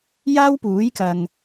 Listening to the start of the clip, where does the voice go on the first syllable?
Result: high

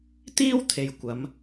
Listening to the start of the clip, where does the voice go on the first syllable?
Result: high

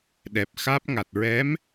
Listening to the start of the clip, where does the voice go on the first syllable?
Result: low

